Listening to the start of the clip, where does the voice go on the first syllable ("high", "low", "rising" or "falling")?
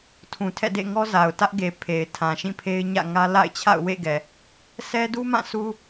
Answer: low